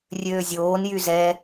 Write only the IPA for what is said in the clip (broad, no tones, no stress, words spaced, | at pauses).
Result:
rʲøːzʲoːn jyzɛ